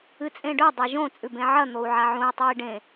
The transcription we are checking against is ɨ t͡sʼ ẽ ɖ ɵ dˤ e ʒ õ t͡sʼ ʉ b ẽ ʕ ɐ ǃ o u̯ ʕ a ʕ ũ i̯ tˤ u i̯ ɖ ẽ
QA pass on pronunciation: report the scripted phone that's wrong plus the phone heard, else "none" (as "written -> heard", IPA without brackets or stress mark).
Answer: ǃ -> n̪